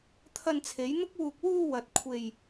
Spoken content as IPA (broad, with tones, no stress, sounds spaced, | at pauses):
t̪ʰ ɐ˧ n t͡sʰ e˨˥ j n̪ ʊ˥ k̚ w uː˧ k̚ w uː˧ w ɐ˨ t̚ kʷʰ e˧ j